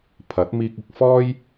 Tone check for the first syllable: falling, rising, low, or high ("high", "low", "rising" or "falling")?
rising